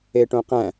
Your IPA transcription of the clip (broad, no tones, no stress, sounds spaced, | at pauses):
e ʈ õ q æ̃